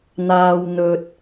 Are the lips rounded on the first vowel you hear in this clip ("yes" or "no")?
no